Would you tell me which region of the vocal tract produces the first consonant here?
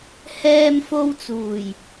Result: throat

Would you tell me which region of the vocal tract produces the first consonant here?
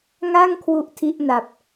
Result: velum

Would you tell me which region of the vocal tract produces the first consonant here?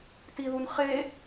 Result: tongue tip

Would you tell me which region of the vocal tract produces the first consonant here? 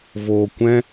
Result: lips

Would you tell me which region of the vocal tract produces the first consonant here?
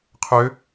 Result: uvula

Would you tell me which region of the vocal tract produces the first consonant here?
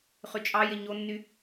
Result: uvula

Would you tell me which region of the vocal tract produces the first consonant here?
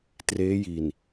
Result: tongue tip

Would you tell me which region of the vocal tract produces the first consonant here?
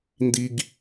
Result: tongue tip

